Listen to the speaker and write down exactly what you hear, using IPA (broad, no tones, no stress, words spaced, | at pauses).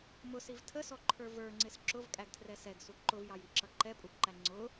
mʊsiv tʰəsɔǃʰə˞ və˞ŋ͡ǀɪs ǁʊvkʼæɡtʰrɛ sɛɡsu ǃʊvjɑjiǁʌ ǃɛpʼubǃæ ŋ͡ǀʊ